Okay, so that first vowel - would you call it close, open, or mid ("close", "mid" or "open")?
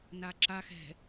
open